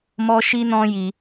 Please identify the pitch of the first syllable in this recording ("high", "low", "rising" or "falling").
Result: high